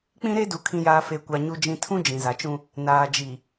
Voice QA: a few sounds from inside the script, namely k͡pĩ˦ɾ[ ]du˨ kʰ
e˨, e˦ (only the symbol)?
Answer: e˦